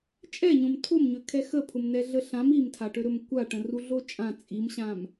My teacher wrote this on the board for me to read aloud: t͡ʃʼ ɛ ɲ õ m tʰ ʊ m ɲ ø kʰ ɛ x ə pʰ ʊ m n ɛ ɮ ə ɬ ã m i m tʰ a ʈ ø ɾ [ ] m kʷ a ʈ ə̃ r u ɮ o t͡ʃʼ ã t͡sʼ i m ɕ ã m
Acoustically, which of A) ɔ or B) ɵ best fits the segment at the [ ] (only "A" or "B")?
B